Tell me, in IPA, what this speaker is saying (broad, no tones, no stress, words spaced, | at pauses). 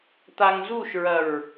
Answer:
t̪aŋzuʃɹɐɹ